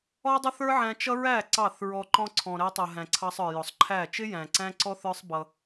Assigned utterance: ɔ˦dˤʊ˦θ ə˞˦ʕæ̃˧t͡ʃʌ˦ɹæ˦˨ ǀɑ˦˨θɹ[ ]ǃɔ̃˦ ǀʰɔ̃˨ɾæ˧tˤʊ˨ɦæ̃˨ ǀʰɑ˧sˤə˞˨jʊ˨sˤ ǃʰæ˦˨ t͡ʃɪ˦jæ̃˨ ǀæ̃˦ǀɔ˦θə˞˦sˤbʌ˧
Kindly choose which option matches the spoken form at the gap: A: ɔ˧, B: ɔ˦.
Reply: A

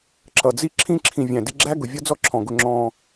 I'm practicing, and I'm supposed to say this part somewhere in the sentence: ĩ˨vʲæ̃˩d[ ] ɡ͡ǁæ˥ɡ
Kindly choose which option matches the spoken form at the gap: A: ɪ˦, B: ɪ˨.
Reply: A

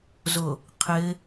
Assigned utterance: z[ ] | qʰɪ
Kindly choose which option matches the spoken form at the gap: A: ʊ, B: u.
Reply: A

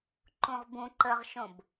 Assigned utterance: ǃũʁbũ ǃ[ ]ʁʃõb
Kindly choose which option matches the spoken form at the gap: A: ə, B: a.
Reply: A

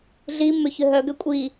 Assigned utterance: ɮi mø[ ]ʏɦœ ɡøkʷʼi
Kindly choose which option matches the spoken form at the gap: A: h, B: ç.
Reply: B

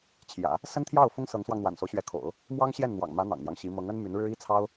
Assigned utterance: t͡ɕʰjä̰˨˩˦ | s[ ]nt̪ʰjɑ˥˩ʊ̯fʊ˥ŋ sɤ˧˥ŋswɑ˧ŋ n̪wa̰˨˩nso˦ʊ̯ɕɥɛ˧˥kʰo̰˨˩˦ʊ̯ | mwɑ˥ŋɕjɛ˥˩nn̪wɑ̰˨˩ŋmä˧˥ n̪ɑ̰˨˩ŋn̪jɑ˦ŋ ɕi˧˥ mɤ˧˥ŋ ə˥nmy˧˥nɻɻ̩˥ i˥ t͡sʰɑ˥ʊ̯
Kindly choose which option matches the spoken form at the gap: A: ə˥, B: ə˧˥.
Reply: A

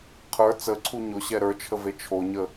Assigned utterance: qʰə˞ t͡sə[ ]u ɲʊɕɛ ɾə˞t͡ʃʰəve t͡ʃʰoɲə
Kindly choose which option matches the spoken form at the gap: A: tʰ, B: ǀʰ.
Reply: B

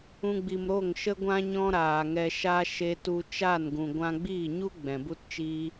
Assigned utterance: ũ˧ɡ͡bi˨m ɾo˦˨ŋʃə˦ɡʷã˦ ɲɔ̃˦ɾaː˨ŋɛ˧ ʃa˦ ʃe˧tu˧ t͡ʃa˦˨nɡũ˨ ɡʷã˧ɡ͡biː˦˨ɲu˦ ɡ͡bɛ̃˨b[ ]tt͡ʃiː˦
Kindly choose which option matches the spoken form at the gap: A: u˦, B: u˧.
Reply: A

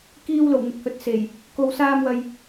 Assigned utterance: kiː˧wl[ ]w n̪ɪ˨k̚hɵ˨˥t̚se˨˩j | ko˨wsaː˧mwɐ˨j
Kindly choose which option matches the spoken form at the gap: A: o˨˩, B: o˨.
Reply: A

